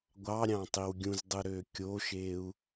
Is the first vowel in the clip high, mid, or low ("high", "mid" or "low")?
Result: low